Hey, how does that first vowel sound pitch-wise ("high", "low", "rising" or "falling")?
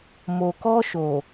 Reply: low